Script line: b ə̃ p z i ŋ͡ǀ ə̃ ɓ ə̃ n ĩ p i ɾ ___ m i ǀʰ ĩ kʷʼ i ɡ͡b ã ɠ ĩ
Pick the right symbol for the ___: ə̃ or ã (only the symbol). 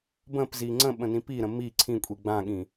ə̃